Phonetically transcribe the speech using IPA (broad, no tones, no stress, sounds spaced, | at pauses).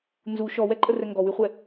n z u ʃ ɔ w ɛ ǃʼ ə r ɛ ŋ ɡ ɔ w y χʷ ɛ